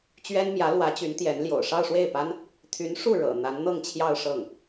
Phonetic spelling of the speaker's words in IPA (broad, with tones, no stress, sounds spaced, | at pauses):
t͡ɕ ɥ ɛ˥ n m j ä˧˥ l w ä˧˥ t͡ɕ y˧˥ n t̪ j ɛ˧˥ n l j o̰˨˩ ʊ̯ ʂ ɑ˥˧ ʊ̯ ʂ w e˥˩ ɪ̯ p a˥ n | t̪ʰ y˧˥ n ʂ u˥˩ ɻ ɤ̰˨˩ n̪ a˧˥ n n̪ ɤ˥˧ ŋ t͡ɕʰ j ɑ˥˧ ʊ̯ ʂ ɤ˥˩ ŋ